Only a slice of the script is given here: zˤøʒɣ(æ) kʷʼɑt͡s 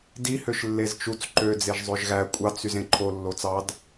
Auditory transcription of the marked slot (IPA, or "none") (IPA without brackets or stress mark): æ